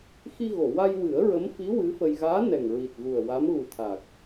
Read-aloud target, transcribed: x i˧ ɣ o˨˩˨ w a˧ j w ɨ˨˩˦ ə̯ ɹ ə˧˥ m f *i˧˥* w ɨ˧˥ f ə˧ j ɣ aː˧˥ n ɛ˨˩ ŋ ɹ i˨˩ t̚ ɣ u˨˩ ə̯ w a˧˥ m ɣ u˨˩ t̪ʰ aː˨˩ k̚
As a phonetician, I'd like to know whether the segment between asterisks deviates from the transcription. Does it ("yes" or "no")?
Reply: no